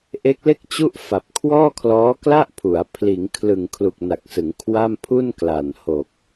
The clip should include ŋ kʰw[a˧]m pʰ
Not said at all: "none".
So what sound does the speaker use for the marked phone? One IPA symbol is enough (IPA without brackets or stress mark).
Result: a˥˩